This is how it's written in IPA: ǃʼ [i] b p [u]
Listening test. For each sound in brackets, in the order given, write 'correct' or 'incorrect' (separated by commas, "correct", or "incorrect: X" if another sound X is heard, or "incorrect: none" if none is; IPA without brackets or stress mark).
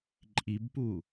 correct, correct